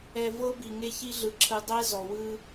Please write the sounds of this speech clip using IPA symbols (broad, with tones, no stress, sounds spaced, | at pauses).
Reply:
ɛ˨ v ɤ˦ b i˨ ŋ e˦ ç i˦ ɮ ɯ˨ ǁʰ ɯ˨ dˤ ɛ˦ z ɔ˨ w ɯ˦